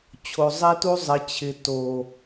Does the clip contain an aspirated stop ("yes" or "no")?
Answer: yes